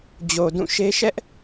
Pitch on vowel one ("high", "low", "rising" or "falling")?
low